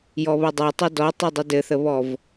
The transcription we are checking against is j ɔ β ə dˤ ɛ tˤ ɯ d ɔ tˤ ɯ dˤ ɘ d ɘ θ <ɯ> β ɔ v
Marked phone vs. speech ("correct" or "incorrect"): incorrect